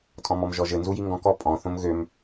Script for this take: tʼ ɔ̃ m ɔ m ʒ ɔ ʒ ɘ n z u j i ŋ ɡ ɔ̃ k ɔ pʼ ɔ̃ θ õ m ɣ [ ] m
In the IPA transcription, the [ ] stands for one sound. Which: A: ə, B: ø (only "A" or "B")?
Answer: B